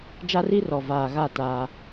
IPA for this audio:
d͡ʒa˦ri˦rɔ˨ vaː˨ɣa˦˨ ta˦

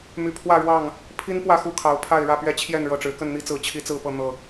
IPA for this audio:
my˨˦pʰwä˥˨ɻwɑ˥˨ŋ | pʰi˦n pwä˥˨xu˥˨kʰɑ˨˦ʊ̯pʰa˥˨ɪ̯ ɻä˥˨pɥɛ˦t͡ɕʰjɛ˥˨n ɻɤ˥˨ʈ͡ʂɻ̩˨˦ kə˥˨nn̪i˦t͡sɹ̩˨˦ t͡ɕʰi˦t͡sɹ̩˥˨pɤ˥˨ n̪ɤ˨˩

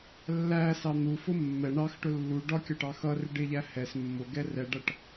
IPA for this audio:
lːæsɑ n̪ufʊ mːɛ ɳɑxʈʊ lːu ɖɒ kʲɒʈɑxʌrɪɖ ɪʎæ hɛs mːʊɡɛ rɛɖʌʈ

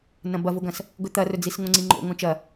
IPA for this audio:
nɐ̃bɐvoɡɐ̃s | ɡɵt̪ɐrɵd͡zis ŋõŋ͡ǀiŋ͡ǃo̰ ŋõt͡ʃɐ

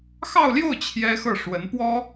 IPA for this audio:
xɑ˥˧ʊ̯ljo˥˩ʊ̯ t͡ɕʰjɛ˥xɤ˥˩ ʂwə˧˥npwɔ˥

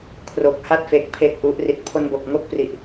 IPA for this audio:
kʰro˨˩k̚ha˥˩t̚fe˨˩k̚ pʰeː˥˩k̚ʔu˦˥ʔri˦˥t̚ pʰo˧nbo˨˩k̚ŋo˥˩k̚pri˨˩ʔ

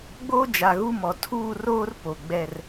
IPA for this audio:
ɡ͡boː˦d͡ʒa˨ɣu˦mɔ˨ tʰuː˦˨roː˦r po˨ɡ͡bɛ˦˨r

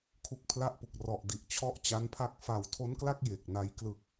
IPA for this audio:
kʰu˦˥k̚pʰla˥˩ʔpu˨˩k̚ rɔ˨˩ʔdi˨˩ʔ t͡ɕʰɔ˥˩ʔt͡ɕa˦˥npʰa˥˩k̚ fa˨˩wtʰo˦˥nkla˥˩k̚ je˨˩k̚na˧j klɯ˨˩k̚

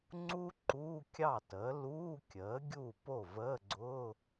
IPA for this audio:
ŋ͡ǀu˥ ǃuː˧˥˧kʲɑ˥˩təː˩˥ luː˧˥˧kʲəː˩˥ ɡʲuː˥˩po˥˩ vəː˧˥˧ɡ͡ǀʊː˧˥˧

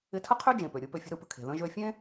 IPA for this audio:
ɪ˧tʰə˥qʰø˥ d͡ʒẽ˩pø˩ ɾʲɯ˧pø˧ fʲə̤˧ɾɯ˧pə̤˧kʰe̤˩ ðə̃˧ʒø˧fʲẽ˥

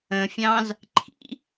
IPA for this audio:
ə̃fʲɑ̃z | ǃʰḭ

